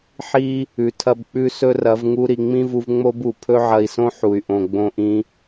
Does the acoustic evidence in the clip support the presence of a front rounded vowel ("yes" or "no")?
yes